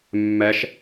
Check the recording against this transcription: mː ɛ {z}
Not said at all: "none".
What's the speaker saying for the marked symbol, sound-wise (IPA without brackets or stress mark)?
ʃ